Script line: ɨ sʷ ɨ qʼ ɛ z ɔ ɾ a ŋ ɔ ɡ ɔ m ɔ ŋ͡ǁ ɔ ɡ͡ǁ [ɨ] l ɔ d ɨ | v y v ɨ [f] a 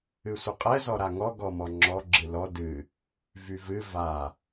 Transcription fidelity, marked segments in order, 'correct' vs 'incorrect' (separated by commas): correct, incorrect